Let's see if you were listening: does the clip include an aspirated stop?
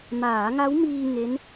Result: no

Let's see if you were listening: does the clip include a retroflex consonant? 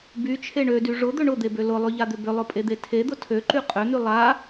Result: yes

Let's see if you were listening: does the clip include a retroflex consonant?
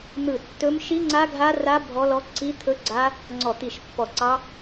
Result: no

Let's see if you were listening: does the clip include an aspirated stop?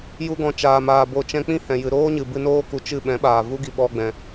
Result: no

